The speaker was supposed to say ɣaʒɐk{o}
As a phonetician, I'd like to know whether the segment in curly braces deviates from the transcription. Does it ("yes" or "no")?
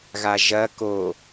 no